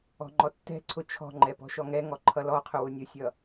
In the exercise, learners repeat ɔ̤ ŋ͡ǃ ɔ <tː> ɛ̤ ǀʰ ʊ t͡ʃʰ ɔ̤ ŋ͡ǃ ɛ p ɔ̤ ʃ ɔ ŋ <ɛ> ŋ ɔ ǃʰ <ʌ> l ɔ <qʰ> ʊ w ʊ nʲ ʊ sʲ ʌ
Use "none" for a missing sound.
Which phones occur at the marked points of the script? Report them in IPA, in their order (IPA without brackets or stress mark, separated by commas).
tː, ɛ, ʌ, qʰ